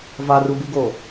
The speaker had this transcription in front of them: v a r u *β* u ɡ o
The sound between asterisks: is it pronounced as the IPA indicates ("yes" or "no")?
no